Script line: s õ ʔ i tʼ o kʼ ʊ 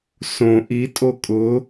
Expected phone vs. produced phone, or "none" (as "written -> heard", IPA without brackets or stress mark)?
none